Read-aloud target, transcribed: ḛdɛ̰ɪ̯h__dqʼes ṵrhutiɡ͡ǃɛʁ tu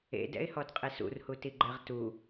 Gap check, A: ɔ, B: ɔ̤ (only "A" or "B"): A